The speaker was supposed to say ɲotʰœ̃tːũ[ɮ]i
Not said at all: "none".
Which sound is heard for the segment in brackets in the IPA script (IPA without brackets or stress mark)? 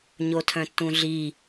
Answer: ɮ